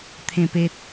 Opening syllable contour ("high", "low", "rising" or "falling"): low